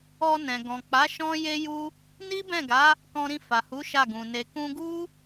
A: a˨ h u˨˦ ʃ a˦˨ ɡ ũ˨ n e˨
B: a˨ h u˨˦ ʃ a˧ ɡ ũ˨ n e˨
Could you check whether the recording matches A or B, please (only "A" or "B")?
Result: A